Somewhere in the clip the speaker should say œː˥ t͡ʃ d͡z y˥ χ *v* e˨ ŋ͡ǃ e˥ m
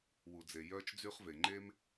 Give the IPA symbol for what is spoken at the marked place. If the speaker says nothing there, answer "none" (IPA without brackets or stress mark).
v